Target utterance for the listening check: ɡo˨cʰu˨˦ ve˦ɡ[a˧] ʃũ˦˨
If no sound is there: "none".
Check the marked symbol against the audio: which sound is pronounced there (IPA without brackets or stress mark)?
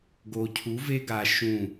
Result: a˧